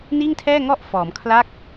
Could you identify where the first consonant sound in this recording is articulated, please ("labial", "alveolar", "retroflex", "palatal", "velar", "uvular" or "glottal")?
alveolar